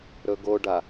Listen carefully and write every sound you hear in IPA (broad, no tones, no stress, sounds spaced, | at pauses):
ɾ ɵ ɡ o ɖ a